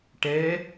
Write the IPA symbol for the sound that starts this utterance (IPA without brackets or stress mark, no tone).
ʈ